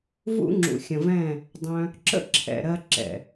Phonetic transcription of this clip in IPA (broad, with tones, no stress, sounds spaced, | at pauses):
v ṵ˦ ŋ͡ǁ ṵ˨ xʲ ə̃˨ v ɛ̃˦˨ | dˤ œ̃˧ | ǁ ə̰˦ ǁʰ ɛ̰˨ ɾ ɜ˧ ǁ ɛ̰˨